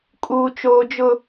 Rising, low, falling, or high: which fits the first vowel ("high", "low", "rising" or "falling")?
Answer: high